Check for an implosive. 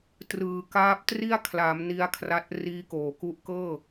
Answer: absent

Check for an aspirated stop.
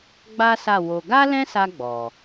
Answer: absent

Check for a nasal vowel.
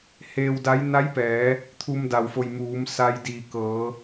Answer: absent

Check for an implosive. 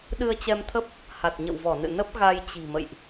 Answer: present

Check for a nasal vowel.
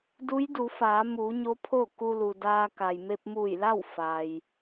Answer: absent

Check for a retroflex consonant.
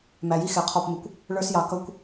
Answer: present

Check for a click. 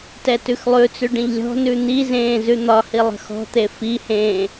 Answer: absent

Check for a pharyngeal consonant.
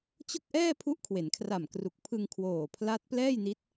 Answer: absent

